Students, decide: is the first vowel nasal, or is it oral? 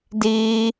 oral